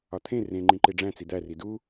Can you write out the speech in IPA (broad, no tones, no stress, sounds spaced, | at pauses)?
ɒ t̪ʰ ẽ r ẽ ŋ͡ǃ ĩ ǃ e ɖ͡ʐ æ̃ t͡s i d̪ æ r i d u